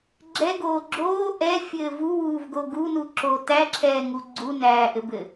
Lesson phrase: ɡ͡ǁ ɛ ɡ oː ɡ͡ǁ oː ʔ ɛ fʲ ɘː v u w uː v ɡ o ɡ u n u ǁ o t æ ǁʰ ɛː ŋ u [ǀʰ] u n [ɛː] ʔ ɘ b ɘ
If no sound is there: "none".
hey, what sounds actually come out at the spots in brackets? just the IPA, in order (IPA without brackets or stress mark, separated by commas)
ɡ͡ǀ, æː